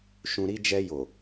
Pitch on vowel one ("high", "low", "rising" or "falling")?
low